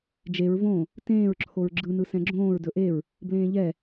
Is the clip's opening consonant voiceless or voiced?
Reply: voiced